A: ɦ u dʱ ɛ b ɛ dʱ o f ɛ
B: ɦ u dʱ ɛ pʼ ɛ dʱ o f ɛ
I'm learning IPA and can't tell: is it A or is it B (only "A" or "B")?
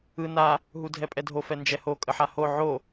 B